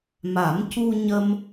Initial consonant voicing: voiced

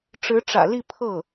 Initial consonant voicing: voiceless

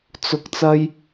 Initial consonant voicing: voiceless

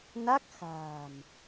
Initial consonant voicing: voiced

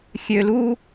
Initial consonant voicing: voiceless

